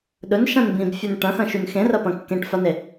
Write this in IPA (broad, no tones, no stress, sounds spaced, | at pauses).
ɗ ɵ n ʃ ã n b ĩ b fʲ ʉ n ʈ ɐ̃ x ɐ̃ ʃ ʉ n x ẽ r ɐ p ɐ̃ kː ẽ ʈ f a n e